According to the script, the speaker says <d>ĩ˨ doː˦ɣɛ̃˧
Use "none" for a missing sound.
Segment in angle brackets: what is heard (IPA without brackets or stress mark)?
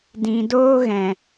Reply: d